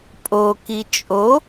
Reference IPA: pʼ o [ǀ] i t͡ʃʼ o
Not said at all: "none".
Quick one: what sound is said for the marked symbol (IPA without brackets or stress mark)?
k